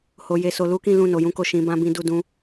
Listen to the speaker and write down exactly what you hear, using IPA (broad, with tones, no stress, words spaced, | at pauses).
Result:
ho˨je˨so˨ lu˨˦kĩ˦˨lũ˧ no˨jũ˨˦ko˦˨ ʃĩ˨˦bã˦bĩ˦du˦˨ dũ˧